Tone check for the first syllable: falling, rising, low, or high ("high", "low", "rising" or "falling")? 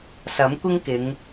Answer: rising